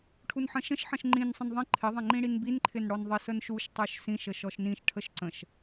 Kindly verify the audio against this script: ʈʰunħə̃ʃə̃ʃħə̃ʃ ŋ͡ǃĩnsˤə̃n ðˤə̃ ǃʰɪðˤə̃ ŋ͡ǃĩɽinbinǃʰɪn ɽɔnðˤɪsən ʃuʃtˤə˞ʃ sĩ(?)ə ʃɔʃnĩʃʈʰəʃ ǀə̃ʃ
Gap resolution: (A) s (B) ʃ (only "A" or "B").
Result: B